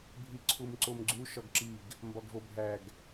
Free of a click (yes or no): no